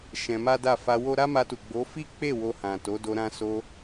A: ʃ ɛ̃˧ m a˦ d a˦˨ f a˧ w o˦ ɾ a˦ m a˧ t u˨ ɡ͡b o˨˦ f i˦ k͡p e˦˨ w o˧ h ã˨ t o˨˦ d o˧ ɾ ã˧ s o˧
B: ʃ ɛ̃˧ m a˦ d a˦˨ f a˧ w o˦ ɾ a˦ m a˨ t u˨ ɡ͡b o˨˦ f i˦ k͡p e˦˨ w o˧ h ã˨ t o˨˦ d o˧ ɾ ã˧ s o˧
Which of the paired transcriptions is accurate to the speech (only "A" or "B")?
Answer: A